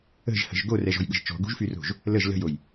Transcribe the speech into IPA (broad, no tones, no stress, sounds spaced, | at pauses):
ə̤ ʒ h ə̤ ʒ ɡ o r ɛ ʒ ɔ̤ j ɠ ə̤ ʒ t͡ʃ ɔ̤ ɡ ṳ ʒ f y r o̤ ʒ | l ə ʒ l ə̤ j o j